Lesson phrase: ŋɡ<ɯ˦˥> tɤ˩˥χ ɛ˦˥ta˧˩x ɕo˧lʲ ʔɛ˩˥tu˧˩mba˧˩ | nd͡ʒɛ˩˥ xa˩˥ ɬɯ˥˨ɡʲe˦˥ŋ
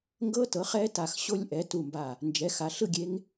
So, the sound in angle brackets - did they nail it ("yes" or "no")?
no